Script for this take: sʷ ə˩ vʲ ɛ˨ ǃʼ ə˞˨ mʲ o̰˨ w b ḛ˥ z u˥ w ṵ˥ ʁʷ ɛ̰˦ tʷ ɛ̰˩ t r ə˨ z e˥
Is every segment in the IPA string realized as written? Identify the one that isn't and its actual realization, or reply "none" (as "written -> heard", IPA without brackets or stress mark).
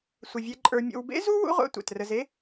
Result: none